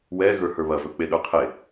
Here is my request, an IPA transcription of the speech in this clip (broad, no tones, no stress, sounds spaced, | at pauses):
w ɛ ɣ ə˞ h ə˞ β ɐ v ɵ k͡p e ɗ ə˞ qʰ e